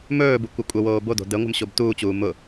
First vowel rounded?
yes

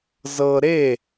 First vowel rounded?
no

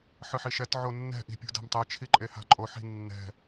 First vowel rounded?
no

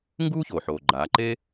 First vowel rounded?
yes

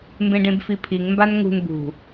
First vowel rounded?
no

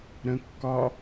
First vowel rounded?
no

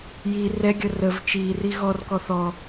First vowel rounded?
no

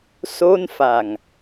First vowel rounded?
yes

